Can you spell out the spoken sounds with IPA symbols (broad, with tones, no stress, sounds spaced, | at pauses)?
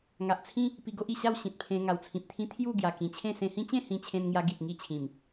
ŋ a˨ ʔ t͡sʰ ĩ˦ | p i˧ ɡ o˦ ʔ i˨˩ ɕ a˥˧ w ɕ ĩ˨ t̚ pʰ ẽ˧ ŋ a˨˩ w t͡sʰ ĩ˨ p̚ t̪ʰ ĩ˦ t̪ʰ j u˥˧ ɡ j a˨˩ k ĩ˨˩ t͡ɕʰ ẽ˥˧ s ẽ˧ h ĩ˦ t͡ɕ ẽ˥˧ h ĩ˧ t͡ɕʰ ẽ˧ n ŋ j a˧ ɡ i˨ t̚ ŋ i˥˧ t͡ɕʰ ĩ˨˩ m